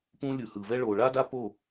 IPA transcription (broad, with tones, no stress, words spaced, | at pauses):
pũ˦ lʲɯ˨hɯ˨vɛ˦ ɭo˨ɭa˦da˦po˦˨